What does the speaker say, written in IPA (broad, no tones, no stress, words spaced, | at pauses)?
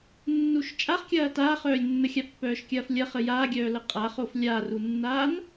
nːuʃt͡ʃʼaχkʲɐː taːχœːlʲnːəxʲa pːœːʃkʲɐːflʲɐ χəjaːɡʲœː ləqʼaχof lʲarunːaːn